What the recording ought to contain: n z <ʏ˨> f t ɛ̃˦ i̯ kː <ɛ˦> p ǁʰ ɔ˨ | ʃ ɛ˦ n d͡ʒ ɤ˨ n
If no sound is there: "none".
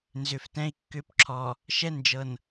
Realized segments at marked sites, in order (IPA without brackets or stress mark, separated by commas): ʏ˨, ʏ˦